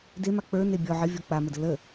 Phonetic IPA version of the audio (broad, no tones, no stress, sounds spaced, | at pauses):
d e m a k͡p ə˞ n e bʲ ɔ ʕ ə vʲ ɔ k͡p a m ə d ə l ə